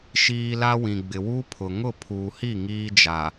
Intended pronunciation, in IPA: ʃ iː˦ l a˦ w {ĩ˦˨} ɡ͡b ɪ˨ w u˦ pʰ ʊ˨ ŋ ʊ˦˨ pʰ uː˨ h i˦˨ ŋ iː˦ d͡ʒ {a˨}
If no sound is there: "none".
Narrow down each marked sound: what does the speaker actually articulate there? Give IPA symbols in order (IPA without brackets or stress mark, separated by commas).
ĩ˨, a˨